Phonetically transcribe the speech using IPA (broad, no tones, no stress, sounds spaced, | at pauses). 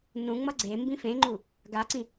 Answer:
n ũ ŋ͡m ʌ ɡ͡ǀ e m b ĩ f ẽ ŋ͡ǃ u | ɡ a ǀ ĩ